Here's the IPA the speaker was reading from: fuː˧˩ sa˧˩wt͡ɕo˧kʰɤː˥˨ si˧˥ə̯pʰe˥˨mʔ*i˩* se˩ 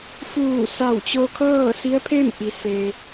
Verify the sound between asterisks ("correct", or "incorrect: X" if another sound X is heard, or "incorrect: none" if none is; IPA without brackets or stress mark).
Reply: correct